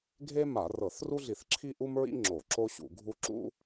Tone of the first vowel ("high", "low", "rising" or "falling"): high